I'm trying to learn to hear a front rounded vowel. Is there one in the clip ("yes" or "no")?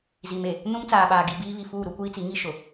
no